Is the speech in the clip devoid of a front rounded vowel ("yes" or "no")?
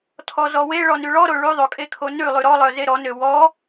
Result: no